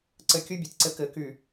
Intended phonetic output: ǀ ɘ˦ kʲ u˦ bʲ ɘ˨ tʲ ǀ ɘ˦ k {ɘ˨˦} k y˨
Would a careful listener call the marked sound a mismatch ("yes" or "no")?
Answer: no